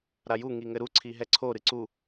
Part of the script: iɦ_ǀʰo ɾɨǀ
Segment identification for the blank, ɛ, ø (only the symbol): ɛ